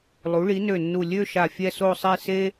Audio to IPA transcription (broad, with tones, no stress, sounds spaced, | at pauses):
lˠ u˩˧ ɭ i˩˧ n ø˧˩ nː u˧˩ lʲ ø˥˧ ʃ a˧˩ fʲ ɛ˥˧ s o˥˧ sˤ e˥˧ s e˥